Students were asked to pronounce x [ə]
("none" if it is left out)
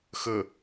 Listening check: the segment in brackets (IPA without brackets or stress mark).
ə